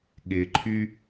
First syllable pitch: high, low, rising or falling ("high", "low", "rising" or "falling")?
low